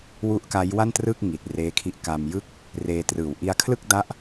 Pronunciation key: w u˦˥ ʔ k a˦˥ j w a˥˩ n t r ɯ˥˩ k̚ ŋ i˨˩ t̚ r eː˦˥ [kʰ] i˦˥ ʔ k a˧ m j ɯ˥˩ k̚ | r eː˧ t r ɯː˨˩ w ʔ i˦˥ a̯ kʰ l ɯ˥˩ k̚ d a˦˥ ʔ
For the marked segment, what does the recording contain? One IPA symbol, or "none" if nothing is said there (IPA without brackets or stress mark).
kʰ